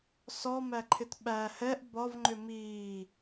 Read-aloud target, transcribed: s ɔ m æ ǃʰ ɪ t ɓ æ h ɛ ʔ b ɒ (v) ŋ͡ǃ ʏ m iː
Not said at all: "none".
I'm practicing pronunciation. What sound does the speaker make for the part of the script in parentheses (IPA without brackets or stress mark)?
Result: v